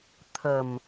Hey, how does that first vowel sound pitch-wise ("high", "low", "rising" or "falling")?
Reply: low